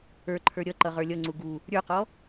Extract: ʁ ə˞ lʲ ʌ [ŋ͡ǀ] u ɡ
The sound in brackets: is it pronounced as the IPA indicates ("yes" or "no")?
yes